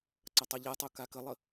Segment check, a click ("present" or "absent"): present